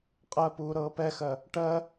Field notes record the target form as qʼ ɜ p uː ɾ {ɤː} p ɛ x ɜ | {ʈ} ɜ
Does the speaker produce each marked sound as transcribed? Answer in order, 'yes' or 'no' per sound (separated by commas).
yes, yes